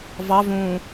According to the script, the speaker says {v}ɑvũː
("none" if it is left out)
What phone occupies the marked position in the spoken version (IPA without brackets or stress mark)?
v